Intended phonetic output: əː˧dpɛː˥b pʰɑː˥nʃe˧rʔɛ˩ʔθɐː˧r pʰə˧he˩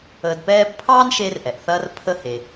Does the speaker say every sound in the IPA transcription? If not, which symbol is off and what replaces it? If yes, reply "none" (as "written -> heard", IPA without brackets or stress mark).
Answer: none